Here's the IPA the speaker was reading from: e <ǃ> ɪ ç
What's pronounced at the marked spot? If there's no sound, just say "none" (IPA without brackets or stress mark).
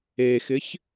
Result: x